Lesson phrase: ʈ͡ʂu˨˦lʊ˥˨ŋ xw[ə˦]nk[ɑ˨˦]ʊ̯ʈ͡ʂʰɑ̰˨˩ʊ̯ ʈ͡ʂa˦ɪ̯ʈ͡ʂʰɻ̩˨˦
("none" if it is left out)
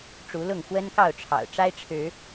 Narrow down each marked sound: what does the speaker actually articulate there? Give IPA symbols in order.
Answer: ə˦, ɑ˥˨

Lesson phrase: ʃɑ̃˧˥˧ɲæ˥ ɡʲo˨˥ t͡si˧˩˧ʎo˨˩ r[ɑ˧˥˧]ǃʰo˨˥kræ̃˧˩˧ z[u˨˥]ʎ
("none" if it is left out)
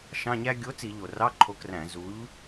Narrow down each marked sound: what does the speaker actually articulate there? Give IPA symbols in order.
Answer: ɑ˧˥˧, u˨˥

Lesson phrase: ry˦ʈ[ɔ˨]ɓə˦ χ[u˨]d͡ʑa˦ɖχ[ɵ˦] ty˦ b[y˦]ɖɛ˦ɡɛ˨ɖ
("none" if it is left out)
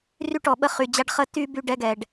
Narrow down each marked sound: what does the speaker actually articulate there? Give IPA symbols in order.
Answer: ɔ˨, y˨, ə˦, y˦

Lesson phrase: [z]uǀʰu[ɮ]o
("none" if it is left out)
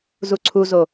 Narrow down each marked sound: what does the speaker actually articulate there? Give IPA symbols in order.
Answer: z, z

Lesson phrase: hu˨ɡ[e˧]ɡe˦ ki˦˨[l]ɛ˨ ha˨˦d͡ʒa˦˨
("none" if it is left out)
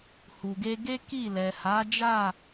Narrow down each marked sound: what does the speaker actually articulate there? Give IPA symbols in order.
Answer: e˧, l

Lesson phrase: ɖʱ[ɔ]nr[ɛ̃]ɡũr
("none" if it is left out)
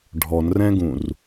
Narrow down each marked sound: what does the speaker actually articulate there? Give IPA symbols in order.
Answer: ɔ, ɛ̃

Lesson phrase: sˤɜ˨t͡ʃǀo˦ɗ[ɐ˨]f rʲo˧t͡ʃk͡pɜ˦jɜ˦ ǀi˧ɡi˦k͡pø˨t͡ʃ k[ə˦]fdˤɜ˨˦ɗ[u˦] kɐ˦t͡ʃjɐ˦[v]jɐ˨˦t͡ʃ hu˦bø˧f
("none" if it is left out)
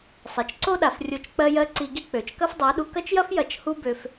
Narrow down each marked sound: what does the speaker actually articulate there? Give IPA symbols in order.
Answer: a˨, ɐ˦, u˧, f

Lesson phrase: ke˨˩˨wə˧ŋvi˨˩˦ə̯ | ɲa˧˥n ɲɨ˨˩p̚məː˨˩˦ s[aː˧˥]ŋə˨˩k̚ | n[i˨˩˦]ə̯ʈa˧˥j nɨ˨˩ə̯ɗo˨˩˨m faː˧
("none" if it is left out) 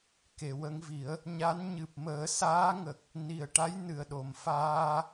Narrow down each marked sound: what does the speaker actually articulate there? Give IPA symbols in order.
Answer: aː˧˥, i˨˩

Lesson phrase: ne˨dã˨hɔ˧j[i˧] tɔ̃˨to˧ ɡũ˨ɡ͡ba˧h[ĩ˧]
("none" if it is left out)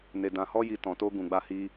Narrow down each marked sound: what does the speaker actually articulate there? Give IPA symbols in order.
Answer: i˨, i˧

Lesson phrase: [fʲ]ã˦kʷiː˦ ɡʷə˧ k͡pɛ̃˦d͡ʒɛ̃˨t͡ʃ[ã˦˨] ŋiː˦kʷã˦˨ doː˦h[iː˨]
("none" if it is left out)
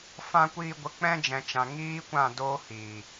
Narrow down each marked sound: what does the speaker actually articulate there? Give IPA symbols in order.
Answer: f, ã˨, iː˨

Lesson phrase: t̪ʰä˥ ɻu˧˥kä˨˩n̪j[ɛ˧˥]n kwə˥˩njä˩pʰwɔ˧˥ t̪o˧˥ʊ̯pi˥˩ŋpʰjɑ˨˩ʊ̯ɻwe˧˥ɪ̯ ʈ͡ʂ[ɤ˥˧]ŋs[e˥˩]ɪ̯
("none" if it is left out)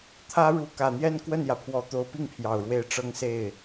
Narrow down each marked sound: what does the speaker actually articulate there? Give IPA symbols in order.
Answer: ɛ˥˧, ɤ˥˧, e˥˩

